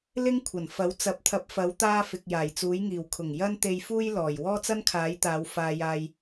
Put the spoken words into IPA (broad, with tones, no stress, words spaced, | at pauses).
lɪ˥ŋkʷʰɐ˨˩nfɐ˨˥w t͡sɐ˨˥p̚t̪ʰɐ˨˥p̚fɐ˨˥w t̪aː˥fɪ˨k̚ jaː˨˩jt͡suː˨˥jŋiː˨˩w kʰʊ˨˩ŋ jɐ˥n t̪e˧jfuː˥j lɔː˨˩j wɔː˥t͡sɐ˥nkʰaː˨˥jt̪aː˨˧w faː˧jaː˧j